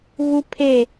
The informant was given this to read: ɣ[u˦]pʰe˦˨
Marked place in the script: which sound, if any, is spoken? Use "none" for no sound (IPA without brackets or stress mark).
u˦